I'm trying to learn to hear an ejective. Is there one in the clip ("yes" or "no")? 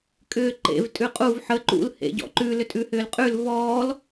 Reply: yes